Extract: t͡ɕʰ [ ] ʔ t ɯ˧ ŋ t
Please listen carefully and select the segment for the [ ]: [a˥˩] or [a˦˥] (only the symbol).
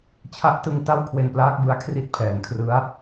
a˦˥